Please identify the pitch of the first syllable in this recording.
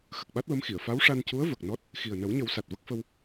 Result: low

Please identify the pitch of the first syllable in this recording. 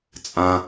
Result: low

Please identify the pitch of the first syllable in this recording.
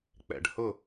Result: low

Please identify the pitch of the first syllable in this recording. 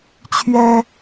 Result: high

